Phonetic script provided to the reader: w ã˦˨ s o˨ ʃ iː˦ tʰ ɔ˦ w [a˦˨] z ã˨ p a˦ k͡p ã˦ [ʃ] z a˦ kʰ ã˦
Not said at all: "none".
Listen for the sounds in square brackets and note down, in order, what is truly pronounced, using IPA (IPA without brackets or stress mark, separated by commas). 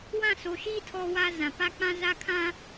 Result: a˦, none